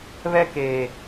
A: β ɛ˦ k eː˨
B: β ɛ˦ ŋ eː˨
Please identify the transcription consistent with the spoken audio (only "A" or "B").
A